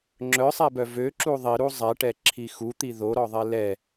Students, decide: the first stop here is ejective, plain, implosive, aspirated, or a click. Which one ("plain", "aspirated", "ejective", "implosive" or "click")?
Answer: click